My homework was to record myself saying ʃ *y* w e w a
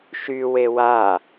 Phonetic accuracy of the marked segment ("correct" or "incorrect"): correct